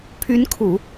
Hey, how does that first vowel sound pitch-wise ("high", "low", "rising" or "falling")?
rising